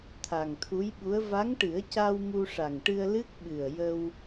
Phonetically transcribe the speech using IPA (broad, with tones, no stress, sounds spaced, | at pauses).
t̪ʰ a˨˩ ŋ t̪ʰ u˧˥ j ɓ u˧˥ ə̯ v a˧˥ ŋ ʈ ɨ˨˩˦ ə̯ c a˧ w m u˧ ʂ a˨˩ ŋ ʈ ɨ˧ ə̯ l ɨ˦˥ k̚ ɓ ɨ˨˩ ə̯ j ə˧ w